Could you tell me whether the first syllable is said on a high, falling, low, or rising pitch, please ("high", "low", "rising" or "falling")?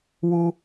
high